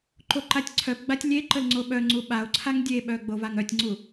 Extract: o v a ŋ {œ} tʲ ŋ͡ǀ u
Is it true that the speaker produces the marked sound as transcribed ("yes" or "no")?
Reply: yes